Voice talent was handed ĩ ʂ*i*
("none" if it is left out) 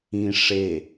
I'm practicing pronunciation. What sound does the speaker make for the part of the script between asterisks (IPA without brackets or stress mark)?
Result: e